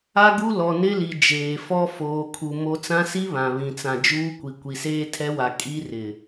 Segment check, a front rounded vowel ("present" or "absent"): absent